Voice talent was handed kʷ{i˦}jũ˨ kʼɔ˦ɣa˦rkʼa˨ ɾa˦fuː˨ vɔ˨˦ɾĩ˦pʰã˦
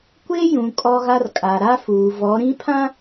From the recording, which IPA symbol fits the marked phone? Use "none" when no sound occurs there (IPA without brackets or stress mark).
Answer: e˦